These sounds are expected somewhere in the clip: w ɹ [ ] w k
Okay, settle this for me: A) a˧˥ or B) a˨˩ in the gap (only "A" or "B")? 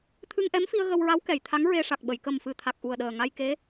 A